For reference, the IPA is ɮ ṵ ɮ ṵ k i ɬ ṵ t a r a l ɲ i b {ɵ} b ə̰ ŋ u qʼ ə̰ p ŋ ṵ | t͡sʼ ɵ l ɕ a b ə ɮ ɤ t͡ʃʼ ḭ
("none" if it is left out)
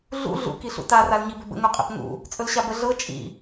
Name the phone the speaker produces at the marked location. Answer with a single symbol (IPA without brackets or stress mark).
ɵ